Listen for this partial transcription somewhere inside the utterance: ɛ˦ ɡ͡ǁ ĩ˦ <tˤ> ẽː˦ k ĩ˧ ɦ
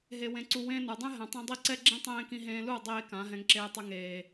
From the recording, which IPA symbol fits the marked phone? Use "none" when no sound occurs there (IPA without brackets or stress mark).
tˤ